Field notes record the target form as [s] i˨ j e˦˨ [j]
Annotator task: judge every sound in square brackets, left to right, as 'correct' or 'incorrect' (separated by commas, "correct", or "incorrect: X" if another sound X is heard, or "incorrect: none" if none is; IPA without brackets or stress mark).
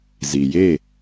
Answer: incorrect: z, incorrect: none